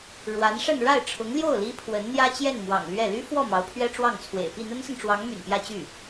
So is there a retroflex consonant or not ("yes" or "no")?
yes